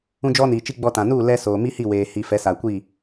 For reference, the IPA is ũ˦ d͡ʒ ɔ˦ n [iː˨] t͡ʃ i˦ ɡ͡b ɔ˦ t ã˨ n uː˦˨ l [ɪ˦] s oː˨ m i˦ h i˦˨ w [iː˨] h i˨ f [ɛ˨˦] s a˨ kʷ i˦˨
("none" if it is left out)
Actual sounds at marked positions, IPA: iː˨, ɛ˦, eː˨, ɛ˨˦

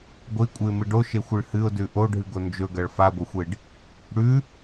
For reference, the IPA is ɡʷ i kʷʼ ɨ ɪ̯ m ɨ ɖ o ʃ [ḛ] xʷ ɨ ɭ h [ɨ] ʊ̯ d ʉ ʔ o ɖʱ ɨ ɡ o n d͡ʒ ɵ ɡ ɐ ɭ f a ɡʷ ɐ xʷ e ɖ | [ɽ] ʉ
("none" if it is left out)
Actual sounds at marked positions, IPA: e, ɨ, ɽ

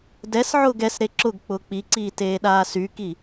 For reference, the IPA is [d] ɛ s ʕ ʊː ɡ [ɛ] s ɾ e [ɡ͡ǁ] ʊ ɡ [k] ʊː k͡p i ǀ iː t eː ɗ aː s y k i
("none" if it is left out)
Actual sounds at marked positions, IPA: d, ɛ, ǁ, k͡p

